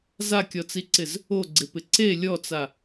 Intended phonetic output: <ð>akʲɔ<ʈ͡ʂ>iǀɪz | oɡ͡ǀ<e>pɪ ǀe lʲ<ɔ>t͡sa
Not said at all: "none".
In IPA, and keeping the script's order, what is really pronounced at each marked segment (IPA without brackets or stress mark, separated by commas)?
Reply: z, t͡s, e, ɔ